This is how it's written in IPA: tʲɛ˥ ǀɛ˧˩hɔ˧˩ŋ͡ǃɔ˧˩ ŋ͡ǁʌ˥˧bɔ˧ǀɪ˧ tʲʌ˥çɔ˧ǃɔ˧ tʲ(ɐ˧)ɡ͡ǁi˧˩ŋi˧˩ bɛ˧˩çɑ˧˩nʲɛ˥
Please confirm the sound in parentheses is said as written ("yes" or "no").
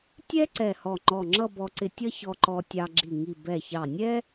no